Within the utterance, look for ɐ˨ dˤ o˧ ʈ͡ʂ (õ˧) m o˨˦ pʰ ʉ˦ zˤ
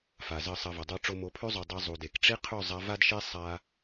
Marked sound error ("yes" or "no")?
yes